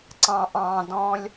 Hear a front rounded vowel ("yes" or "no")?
no